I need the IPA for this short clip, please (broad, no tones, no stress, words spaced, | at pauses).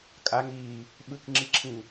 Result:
kʼaŋiː | ɓɯkŋ͡ǁiǁʰĩ